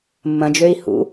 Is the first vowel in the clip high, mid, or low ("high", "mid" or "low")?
low